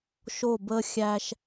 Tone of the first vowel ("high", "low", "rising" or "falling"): falling